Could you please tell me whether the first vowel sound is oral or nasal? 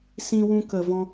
nasal